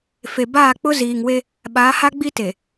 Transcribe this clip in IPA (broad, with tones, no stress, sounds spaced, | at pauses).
f e˨ b aː˦˨ k͡p ʊ˦ z iː˨ ŋ w e˦ | ɓ aː˨˦ h a˦ ɡ͡b i˦ t e˨